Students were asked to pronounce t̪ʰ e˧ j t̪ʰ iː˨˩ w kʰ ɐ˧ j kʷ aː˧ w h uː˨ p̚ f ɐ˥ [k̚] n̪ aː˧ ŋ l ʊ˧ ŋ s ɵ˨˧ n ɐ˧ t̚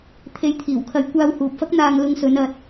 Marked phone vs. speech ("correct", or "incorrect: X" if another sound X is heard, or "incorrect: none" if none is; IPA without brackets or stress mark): correct